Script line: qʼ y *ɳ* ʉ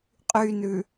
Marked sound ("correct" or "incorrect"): incorrect